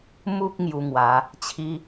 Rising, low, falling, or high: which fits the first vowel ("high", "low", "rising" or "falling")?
high